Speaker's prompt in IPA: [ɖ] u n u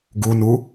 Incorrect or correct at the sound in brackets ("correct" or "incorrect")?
incorrect